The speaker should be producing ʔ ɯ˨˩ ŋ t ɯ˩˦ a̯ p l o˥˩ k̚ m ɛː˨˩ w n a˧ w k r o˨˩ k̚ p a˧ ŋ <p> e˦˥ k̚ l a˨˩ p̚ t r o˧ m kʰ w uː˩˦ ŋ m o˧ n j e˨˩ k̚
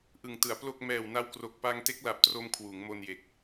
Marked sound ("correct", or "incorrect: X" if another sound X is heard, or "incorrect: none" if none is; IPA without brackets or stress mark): incorrect: t